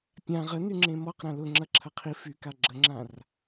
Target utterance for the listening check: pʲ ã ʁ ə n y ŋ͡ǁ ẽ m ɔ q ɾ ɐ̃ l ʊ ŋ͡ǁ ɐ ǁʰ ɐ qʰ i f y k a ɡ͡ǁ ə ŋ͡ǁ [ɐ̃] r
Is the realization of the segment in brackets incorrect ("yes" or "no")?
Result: yes